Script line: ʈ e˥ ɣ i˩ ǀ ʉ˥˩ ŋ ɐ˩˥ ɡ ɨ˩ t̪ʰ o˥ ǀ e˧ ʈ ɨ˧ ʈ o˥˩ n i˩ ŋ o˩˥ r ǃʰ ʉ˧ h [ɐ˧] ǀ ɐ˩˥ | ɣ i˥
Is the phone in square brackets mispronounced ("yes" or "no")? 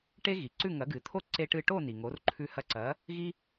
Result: no